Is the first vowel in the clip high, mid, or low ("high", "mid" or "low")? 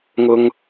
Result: high